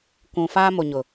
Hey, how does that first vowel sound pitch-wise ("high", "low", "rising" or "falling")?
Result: low